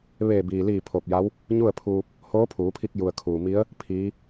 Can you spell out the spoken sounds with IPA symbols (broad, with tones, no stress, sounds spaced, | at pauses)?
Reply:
ʋ eː˧˩ b iː˩ l iː˧˩ pʰ oː˧˩ p̚ j a˧˥ w | ɲ u˥˨ ə̯ pʰ uː˧ p̚ | h oː˧˥ pʰ uː˩˧ pʰ i˧ k̚ j u˩ ə̯ kʰ uː˩ m i˧˥ ə̯ | pʰ iː˧˥